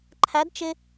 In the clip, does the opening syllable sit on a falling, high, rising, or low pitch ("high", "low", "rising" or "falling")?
rising